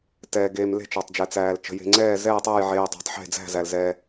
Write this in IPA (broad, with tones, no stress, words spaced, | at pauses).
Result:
tɛː˧ɡeː˧mle̤˥˧ t͡ʃɒ˧tˤd͡ʒɛ˧t͡sæː˧l t͡ʃə̤˧je̤˧ŋ͡ǀɛː˥˧ zɛː˥˧tˤæ˥˧jʕeː˧ tˤe̤˧tˤħe̤˥˧d͡zæ̤˥˧zæ˧l zɛ˧